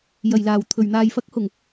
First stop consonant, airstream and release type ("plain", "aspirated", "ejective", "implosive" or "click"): aspirated